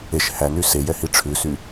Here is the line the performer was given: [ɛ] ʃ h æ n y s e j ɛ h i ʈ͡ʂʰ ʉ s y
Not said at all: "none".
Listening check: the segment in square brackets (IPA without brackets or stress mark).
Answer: e